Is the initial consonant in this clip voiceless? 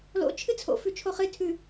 no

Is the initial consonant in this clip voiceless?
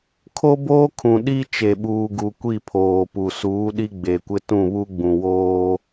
yes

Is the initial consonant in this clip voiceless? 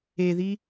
no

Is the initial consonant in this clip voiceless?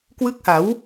yes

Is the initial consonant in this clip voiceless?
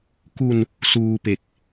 yes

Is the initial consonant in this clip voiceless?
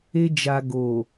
no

